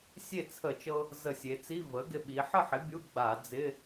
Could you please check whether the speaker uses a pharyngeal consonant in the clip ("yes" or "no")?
yes